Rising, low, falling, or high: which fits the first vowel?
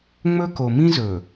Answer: high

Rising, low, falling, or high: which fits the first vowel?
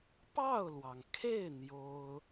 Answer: falling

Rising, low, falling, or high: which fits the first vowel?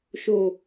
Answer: low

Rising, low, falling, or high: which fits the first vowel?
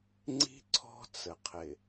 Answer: high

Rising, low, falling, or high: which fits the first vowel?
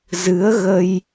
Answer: rising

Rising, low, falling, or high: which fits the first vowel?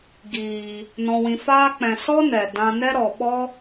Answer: low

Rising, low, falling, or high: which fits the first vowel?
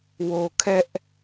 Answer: low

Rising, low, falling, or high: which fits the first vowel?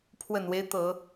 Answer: low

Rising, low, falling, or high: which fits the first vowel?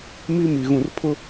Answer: high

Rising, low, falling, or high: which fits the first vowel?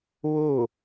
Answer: falling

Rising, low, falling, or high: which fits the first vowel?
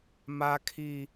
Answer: high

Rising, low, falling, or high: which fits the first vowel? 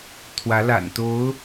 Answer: rising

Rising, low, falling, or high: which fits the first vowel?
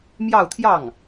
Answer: falling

